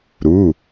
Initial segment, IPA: ɾ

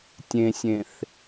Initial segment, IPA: tʲ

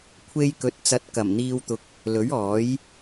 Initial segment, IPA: kʷʰ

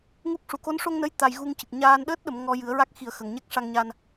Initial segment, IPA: ŋ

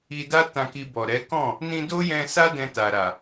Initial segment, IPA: i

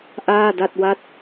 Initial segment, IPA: ʔ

